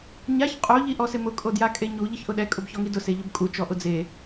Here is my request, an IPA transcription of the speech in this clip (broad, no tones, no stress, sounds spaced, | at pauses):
ɲ a ç qʼ o ʎ i ʔ ɔ s ɪ m ʊ kʼ o d j a kʼ e ɲ u ʎ ɪ ç ʔ ʊ ɗ ɛ kʼ ʊ b ç ɔ ŋ i d ʊ s e ʎ ʊ b kʼ u t͡ʃ ɔ ʔ ʊ d͡z e